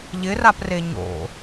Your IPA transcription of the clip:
ʎ ɪ r a p r e ɲ o̰

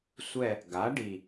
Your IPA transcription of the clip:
sʷ ɛ˦˨ | ɡ a˩˥ ɖ i˨˩

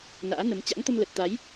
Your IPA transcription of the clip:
n a̰ː˧˥ n ə˨˦ m t͡ɕ a̰˧˥ ŋ t̪ ə˧ m l ə˨˩ t̚ t̪ a˨˦ j

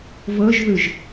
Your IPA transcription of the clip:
v ɤ ʒ ð ɯ ʒ

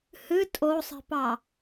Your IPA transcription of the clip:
h ɨ tʼ o sˤ i̤ p ɑ

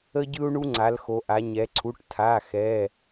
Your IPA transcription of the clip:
ə˦ ɟ ɯ˦ u̯ ɳ u˦ ŋ͡ǀ a˩˧ l x o˩˧ ʔ a˩˧ ɲ ɛ˩˧ ǀʰ u˩˧˩ ʈ tʰ a˩˧˩ x ɛ˩˧˩

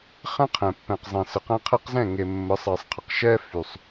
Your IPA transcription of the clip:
χ ɛ̃˦ qʰ ɛ̃˨ pː ɛ̃˨ q zˤ ẽ˨ s ə˨ q æ̃˦ qʰ ɛ˦ q z ɛ̃˦˨ ŋ e˨ mː ə˨˦ sˤ ɛ˨ sˤ qʰ ə˨ q ʃ ɛ˦ f y˨ sˤ

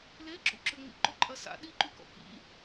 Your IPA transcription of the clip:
l e ǁ ṵ ǁ ʏ ŋ͡m ḭ ǃ o ǃʼ ɐ s a̰ ɗ i ǃ y k ɔ̰ k ḭ

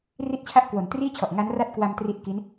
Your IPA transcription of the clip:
r i˥˩ t̚ t͡ɕʰ a˥˩ ʔ k w o˩˦ n t r iː˥˩ t͡ɕʰ ɔ˨˩ ʔ ŋ a˦˥ n r a˥˩ t̚ k w a˧ m t r i˦˥ t̚ k i˦˥ n

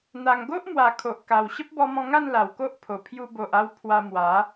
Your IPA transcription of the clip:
n̪ a˨˩ ŋ ɡ o˦ ʔ m w a˨˩ kʰ o˨ ʔ k a˨˩ w ɕ ə˦ p̚ b ɔ˧ m ɔ̃˧ ŋ a˥˧ n l a˨˩ w k o˦ ʔ pʰ o˨˩ pʰ j u˧ b o˨ ʔ a˧ w pʰ w a˧ m w a˨˦

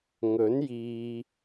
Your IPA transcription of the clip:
ŋ ɵ˨˥ n j iː˨

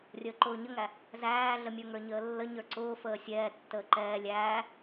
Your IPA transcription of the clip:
rʲ əː ǃ ʊː ɲ ə ŋ æ | z æː ɮ ə mʲ ə˞ ŋ ə˞ ɲ əː lː ə ɲ ə˞ ǀ ʊː f əː sʲ ɛː tː əː ǃ ɛː lʲ æː

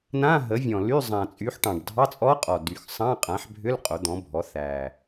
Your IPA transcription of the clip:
n ã˧˥˧ ɦ ə˩˥ vʲ ɔ̃˨˩ l y˧˥˧ zˤ ã˨˩ t͡sʼ y˩˥ ħ ʈ ɑ̃˨˩ ɖ dʱ ɑ˧˥˧ t͡sʼ ɔ˧˥ qʼ ɔ˨˩ d y˨˩ x sˤ ɑ̃˧˥˧ qʼ ã˩˥ ħ bʱ ʏ˧˥˧ l qʼ o˩˥ d̪ ɔ̃˩˥ bʱ ɔ˩˥ θ æ˨˩

